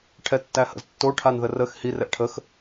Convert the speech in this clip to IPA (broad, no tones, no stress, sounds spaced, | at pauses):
ʈʰ ɛ tː æ h ə̰ z tː o ʈʰ a n ð ə r ə x h i r ɛ ʔ ʈʰ ə x